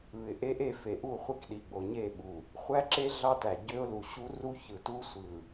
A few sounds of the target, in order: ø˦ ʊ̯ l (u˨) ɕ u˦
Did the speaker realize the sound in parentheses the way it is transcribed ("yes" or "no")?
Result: yes